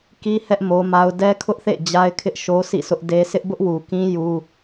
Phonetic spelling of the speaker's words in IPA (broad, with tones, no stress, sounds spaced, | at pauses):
k i˦ h ɛ˦ ʔ m o˦ m a˦ ʊ̯ d ɛ˦ kʰ ʊ˦ ʔ θ ḛ˦˨ d͡ʑ a˦ ɪ̯ kʰ ɪ˦ ʔ ʃ o˦ sʰ ḭ˦˨ sʰ ʊ˦ ʔ d e˦ sʰ ɪ˦ ʔ b ʊ˦ ʔ w u˨ k ĩ˦ j u˦